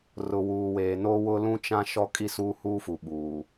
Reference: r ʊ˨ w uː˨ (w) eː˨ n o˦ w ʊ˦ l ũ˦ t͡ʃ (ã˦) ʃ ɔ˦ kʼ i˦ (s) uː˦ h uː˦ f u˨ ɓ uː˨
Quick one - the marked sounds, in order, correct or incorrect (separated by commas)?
correct, correct, correct